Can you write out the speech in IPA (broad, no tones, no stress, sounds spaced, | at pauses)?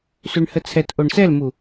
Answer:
s ʉ ɳ h ə t͡sʰ ɛ t ʔ o ɳ s ɛ l m u